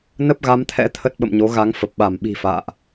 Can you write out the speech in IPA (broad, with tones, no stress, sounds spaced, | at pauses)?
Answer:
n ə˦˥ p̚ ɣ a˨˦ m t̪ʰ ɛ̰˧˥ t̪ʰ ə˦˥ t̚ ɓ ə̰˧˨ m ɲ o˨˦ ɣ a˨˦ ŋ f ə˨˩ p̚ ɓ a˧˩ m ɓ i̤˨˩ f a̰ː˧˨ ʔ